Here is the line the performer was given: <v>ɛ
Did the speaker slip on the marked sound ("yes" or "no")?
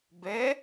yes